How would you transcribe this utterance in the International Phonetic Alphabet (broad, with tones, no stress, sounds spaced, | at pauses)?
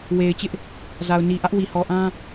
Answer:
w e˨ ɪ̯ t͡ɕ ɪ˦ ʔ | z a˨ ʊ̯ n i˨ ʔ ä˦ ʔ w i˨ h ɔ˨ ʔ ã˦